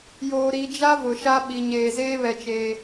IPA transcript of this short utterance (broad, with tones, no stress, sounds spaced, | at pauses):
j oː˨ ɾ i˨ d͡ʒ a˦ v ʊ˨ ʃ a˦ ɓ i˨ ɲ eː˨ z eː˦ β ɛ˨ t͡ʃ eː˨